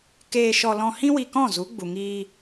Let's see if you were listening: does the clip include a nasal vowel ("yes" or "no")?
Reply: yes